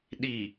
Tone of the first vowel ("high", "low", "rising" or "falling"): low